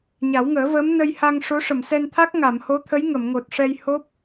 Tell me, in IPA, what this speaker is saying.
ɲ a˨˩˦ w ŋ əː˨˩˦ v əː˧˥ m n ə˧ j h a˧ ŋ ʂ o˧˥ ʂ ə˨˩˨ m s ɛ˧ n t̪ʰ a˦˥ k̚ ŋ a˨˩˨ m h o˧˥ t̪ʰ ə˧˥ j ŋ ə˨˩˨ m ŋ o˨˩ t̚ ʂ ɛ˧ j h o˦˥ p̚

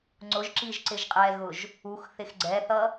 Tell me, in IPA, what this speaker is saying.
ŋ͡ǀ ʊ ʒ ǁ i ʒ ǀ ɪ ʒ qʼ ɛ ɣ ʊ ʒ | u x θ ɪ x ɡ͡ǀ ɛ θ ʌ

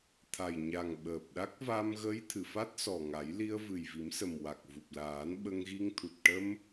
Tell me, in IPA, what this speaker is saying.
t̪ʰ a˨˩ j ɲ a˨˩ ŋ ɓ əː˨˩ p̚ ɗ a˦˥ k̚ v a˧ m ɣ ə˧˥ j t̪ʰ ɨ˨˩˨ f a˦˥ t̚ s ɔ˨˩ ŋ a˨˩˦ j l i˧ ə̯ v ɨ˨˩ j v i˨˩˦ m s ə˨˩ m w a˨˩ k̚ v u˨˩ p̚ l aː˨˩˦ n ɓ ə˧ ŋ ɣ i˧ ŋ t̪ʰ u˨˩ t̚ ʈ ə˧ m

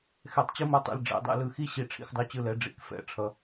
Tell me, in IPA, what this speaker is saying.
x ɛ˧˩ tˤ t͡ɕ ɯ˥˧ m o˥˧ tˤ ɛ̰˧ l ɖ͡ʐ ɛ̰˩˧ dˤ ɛ̰˧ l ɯ˧˩ x i˥ ɕ i˧ ʈ͡ʂʰ ḭ˧˩ x dˤ o˧ t͡ɕ ɯ˧˩ l ɛ˩˧ ɖ͡ʐ ḭ˩˧ k f ɛ̰˩˧ ʈ͡ʂʰ ʌ˩˧

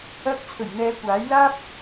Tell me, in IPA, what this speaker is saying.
ɐ˧ k̚ t͡sʰ ɵ˨˩ ɥ n̪ ɛː˨˧ kʷ aː˨˥ j l aː˥ p̚

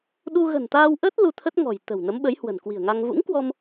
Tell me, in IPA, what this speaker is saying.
ɗ u˧ ɣ ə̤˨˩ n t̪ aː˧ w ʔ əː˦˥ t̚ l u˧ t̪ʰ ə˦˥ t̚ ŋ ɔ̤˨˩ j t̪ ə̤˨˩ w n ə˨˦ m ɓ ə˨˦ j h w ə̤˨˩ n k w i̤˨˩ ə̯ ŋ a˧ ŋ v ṵ˧˥ ŋ k w ɔ˧ m

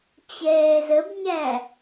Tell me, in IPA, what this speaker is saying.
t͡ɕ ɛː z ə b ɲ æ

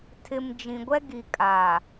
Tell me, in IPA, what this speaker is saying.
tʰ ɪ˨ m d͡ʒ ĩ˨ ɡʷ ɛ˦ ɡ i˨ kʼ a˨

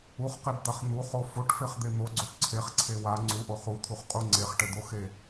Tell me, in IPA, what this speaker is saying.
u χ q e b d̪ a χ n̪ u χ o f o ʈ f e χ d̪ e n̪ o ɡ͡ǀ o ʈ ǀʰ e χ ǀʰ e w a ŋ͡ǀ u ʔ o χ u t̪ʰ u χ qʼ u ŋ͡ǀ e χ ʈ ɘ d̪ o x e

